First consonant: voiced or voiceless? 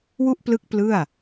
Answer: voiced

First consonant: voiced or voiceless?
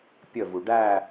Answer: voiceless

